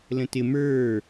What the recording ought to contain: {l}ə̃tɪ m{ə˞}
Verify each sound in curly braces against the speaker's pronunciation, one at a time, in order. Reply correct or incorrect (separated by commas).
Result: correct, correct